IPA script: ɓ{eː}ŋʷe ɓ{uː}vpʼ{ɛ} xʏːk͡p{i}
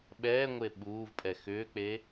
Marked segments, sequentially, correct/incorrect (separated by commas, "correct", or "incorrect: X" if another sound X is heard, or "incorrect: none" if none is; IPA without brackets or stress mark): incorrect: ɛː, correct, correct, incorrect: e